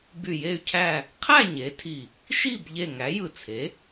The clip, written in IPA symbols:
b y˧˩ j e˥˨ y̯ cʰ æ˥˨ | qʰ æ˥˨ ɲ e˩˥ tʰ i˧˩ | ʃ i˥˨ b ʎ e˧˩ ŋ æ˩˥ j ɯ˧˩ t͡sʰ e˩˥

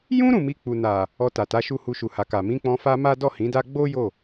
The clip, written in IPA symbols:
j ũ˦ ɾ ũ˦˨ m i˧ k͡p u˨ n a˨ | ɔ˧ t a˨ t a˨˦ ʃ u˦˨ h u˧ ʃ u˨ h a˨ k a˨ m ĩ˨˦ k͡p ɔ̃˧ f a˦ m a˦ d ɔ˦˨ h ĩ˨˦ d a˦ ɡ͡b o˦ j o˦˨

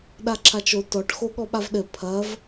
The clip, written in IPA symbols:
ɗ a ǁʰ a t͡ʃ o t ɔ ʈ x o ɠ ɔ ɓ a v ɗ ɘ pʰ ɐ v

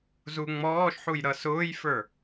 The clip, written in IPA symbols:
z u ŋ͡m ɔː ʃ ħ u j ɾ ʌ s ʊː j f ə˞

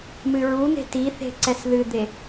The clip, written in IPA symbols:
m ɨ ɹ u n̪ e̤ t i θ e̤ ǀ ɛ s ð ɨ d̪ e

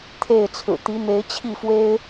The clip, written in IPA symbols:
t̪ʰ e˥˨ ɪ̯ t͡sʰ ɹ̩˨˩ t̪ i˨˦ m e˨˦ ɪ̯ t͡ɕʰ i˥˨ f w e˦ ɪ̯

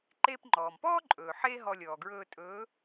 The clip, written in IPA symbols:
ǃ eː˧ p ŋ͡ǃ ɔː˩ m p ɔː˥ ǃʼ ɵː˩ ħ eː˥ ɦ ɔ˧ lʲ ɔː˩ ɡ ɹ ɵː˧ tʼ ɵː˨˥

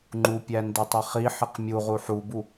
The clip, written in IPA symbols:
ŋ͡ǃ u pʲ æ n d e tˤ i χ i ħ i q mʲ u ʁ u ħ u b u

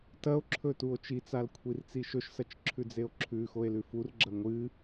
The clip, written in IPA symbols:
t ɐ o̯ ǁʰ ɵ t u o̯ t͡ʃ i t͡s a l kʷʰ i r t͡s i ʃ ɵ ʃ s ɐ t͡ʃ ǁʰ ʉ d͡z e o̯ ǁʰ ʉ x o e̯ l ʉ f u r ɡ͡ǁ ɐ ŋʷ ɨ

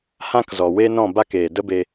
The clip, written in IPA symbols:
h ã˦ k z ɔ˨ w eː˦ n ɔ̃˦˨ b a˦ k eː˨ d ə˦ b e˧

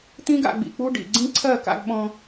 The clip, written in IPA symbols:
t̪ ĩ˦ ɡ a̰˧ ɡ͡b ḭ˧ k͡p u˦ ɖ ḭ˨ ɡ͡ǀ ĩ˦ ǀʰ ɜ˦˨ k a̰˧ ɡ ɓ ɔ̃˧

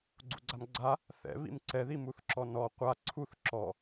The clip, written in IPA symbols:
ɡ͡ǀ ṵ ɡ͡ǀ a m ɡ͡ǀ a | θ ɛ̰ β ḭ m ǀ ɛ ð i m u θ ǁ ɔ n ɔ qʷ a ǀʰ u θ ǁ ɔ

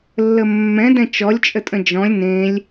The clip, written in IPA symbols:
lː ə mː ɛ̃ d ɛ̃ t͡ʃ ɔ lʲ t͡ʃʼ ə tʼ ə̃ d͡ʒ ɔ̃ lʲ n ẽ lʲ

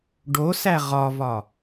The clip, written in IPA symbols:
ɖ o s æ ʁ ɒ v ɒ

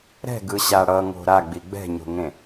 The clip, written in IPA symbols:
ɾ ɛ̤ ɡ ɯ ɕ a ɽ ʌ ŋ o̤ ɾ a ɡ͡b i ɡ͡b ɛ̤ ɲ o̤ ŋ ẽ

